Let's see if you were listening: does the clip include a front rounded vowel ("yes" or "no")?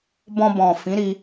no